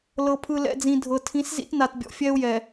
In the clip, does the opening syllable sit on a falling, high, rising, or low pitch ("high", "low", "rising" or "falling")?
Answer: low